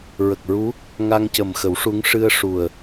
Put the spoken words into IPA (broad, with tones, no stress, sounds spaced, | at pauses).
ɹ ə˨˩ k̚ ɹ u˧˥ | ŋ a˧ ŋ c ə˨˩ m x ə˨˩˦ w ʂ u˧˥ ŋ ʂ ɨ˧ ə̯ ʂ u˨˩ ə̯